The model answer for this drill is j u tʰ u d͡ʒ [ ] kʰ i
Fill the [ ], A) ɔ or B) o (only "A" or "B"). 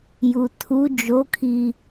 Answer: B